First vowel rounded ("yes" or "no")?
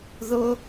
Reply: yes